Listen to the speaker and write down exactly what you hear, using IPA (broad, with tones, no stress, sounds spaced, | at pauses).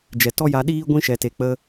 d͡ʒ ɛ˨ t ɔ˦ j a˧ ɗ iː˦ ɡʷ ĩ˦ ʃ ɛ˨ t e˨ k͡p ə˧